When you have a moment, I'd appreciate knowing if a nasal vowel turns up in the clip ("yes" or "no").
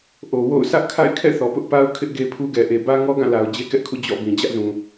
yes